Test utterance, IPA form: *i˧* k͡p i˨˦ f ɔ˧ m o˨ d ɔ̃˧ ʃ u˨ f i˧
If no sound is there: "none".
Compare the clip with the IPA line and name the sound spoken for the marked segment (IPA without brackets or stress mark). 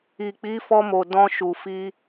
i˨